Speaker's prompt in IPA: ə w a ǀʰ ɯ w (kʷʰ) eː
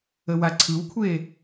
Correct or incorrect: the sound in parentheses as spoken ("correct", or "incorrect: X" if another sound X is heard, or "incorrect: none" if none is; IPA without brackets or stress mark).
correct